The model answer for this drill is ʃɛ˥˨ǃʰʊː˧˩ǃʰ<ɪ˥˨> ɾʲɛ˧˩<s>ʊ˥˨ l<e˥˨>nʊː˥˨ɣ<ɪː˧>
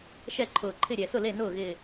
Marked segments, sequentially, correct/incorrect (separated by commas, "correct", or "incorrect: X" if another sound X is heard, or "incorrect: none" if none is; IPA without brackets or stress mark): correct, correct, correct, incorrect: ɪː˧˩